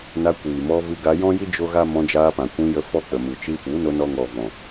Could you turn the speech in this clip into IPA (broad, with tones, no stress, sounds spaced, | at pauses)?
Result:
n a˧ kʷ iː˨ m ɔ˧ v ɨ˧ ɡ a˧ j ɔ̃˦ j i˦ d͡ʒ o˦ ɣ a˦ m ɔ̃˧ d͡ʒ aː˧ p ã˨ kʷ ĩ˧ j ə˧ f ɔ˦ k͡p ə˨ m ɨ˨ t͡ʃ i˧ f u˨˦ n o˧ n ɔ˧ ŋ ɔ˨ v ɔ̃˨